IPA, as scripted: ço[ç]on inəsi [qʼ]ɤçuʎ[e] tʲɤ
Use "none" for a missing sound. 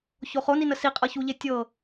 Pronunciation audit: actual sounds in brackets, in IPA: χ, qʼ, e

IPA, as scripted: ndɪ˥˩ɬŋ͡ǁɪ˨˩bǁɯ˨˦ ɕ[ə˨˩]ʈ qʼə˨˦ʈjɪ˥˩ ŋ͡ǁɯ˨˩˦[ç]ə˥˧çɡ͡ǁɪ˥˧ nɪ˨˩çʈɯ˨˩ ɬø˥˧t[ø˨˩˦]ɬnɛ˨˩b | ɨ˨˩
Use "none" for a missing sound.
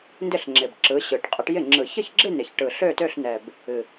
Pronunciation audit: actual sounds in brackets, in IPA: ɯ˨˩, ç, ø˥˧

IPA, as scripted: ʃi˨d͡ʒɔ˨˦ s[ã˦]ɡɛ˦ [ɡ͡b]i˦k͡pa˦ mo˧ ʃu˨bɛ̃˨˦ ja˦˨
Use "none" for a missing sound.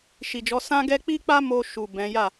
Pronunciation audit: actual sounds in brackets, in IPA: ã˦, k͡p

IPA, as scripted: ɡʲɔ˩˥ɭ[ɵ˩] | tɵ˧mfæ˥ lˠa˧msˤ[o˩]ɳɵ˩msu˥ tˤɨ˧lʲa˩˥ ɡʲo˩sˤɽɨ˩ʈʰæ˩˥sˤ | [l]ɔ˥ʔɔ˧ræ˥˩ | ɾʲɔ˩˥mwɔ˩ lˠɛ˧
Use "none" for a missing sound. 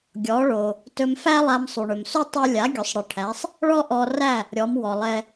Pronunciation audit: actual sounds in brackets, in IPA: o˩, u˩, ɭ

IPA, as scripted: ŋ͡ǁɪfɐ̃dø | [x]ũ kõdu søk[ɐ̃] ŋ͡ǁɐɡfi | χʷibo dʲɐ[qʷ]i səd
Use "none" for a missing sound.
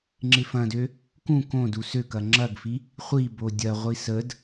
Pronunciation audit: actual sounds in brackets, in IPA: k, ɐ, ʁʷ

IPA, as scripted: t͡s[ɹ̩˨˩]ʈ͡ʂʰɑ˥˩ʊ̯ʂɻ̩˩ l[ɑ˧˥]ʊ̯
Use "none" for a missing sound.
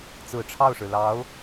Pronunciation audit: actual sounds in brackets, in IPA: ɹ̩˨˩, ɑ˧˥

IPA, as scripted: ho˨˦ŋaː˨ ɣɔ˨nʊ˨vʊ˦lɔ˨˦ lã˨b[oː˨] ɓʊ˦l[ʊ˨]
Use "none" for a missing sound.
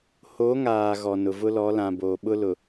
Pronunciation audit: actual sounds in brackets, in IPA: oː˨, ʊ˨

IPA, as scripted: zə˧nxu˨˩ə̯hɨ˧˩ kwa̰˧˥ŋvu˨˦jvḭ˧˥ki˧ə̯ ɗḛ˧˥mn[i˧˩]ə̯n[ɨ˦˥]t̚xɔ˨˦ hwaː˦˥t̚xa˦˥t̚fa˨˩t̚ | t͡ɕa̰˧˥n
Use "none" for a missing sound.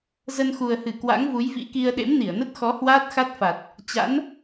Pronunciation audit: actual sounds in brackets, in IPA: i˧˩, ə˦˥

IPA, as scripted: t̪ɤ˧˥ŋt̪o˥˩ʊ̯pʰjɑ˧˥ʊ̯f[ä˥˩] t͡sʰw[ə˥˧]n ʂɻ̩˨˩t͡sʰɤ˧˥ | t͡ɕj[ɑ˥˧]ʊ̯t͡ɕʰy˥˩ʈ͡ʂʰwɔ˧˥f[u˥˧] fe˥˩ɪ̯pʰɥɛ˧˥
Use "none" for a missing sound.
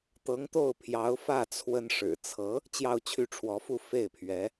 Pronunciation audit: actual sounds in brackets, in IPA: ä˥˩, ə˥, ɑ˥˧, u˥˧

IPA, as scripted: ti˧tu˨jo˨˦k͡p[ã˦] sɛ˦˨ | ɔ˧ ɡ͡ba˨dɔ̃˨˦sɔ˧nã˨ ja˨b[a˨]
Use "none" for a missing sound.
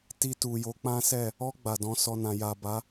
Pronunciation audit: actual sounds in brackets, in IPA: ã˦, a˨˦

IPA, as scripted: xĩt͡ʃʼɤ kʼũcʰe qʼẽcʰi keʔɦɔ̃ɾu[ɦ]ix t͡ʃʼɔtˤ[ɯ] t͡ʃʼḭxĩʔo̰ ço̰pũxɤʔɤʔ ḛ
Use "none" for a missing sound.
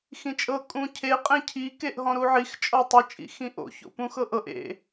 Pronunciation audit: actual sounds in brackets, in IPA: ʕ, ɯ

